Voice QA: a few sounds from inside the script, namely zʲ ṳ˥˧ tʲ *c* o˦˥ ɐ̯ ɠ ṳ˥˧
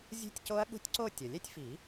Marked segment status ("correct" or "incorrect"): correct